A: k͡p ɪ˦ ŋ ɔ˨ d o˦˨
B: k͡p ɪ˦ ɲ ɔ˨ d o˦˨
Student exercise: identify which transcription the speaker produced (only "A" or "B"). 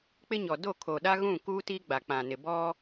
B